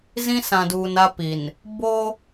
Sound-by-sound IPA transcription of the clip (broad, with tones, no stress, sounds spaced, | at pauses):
z ĩ˦ s ã˨ d uː˨ n a˦ p i˨ n | b o˦